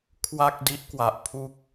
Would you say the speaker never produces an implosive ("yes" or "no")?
yes